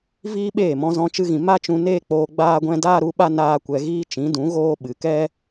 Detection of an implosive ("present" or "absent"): present